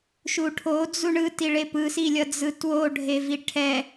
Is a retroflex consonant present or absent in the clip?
present